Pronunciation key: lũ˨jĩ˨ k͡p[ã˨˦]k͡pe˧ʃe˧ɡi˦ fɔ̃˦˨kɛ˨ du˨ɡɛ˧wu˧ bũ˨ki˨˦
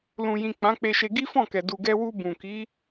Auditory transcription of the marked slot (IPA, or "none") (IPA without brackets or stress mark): ã˨˦